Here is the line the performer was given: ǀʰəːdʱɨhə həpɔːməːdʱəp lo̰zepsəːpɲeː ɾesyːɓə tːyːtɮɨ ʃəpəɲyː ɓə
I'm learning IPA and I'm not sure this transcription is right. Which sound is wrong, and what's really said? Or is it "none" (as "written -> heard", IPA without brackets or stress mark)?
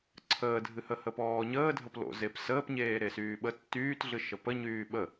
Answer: m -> ɲ